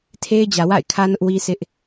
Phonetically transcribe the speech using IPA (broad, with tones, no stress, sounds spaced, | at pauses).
tʰ e˦ ɪ̯ d͡ʑ ä˨ w a̰˦˨ ɪ̯ kʰ ä˦ n ʊ˦ ʔ w i˦ s ɪ˦ ʔ